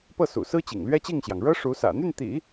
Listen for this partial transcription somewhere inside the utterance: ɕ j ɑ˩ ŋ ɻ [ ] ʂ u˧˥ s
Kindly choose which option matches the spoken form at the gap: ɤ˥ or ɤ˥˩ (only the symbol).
ɤ˥